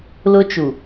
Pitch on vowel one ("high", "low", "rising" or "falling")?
high